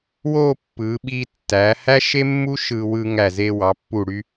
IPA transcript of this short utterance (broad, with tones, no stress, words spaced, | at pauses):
wo˥˧pːɯ˩˧ɓi˧ tːæ˩˧ hæ˥ʃe˥mːu˥ ʃɯ˧ wɯ˧ŋæ˧˩ze˧ wɑ˩˧pːu˧˩ɽy˧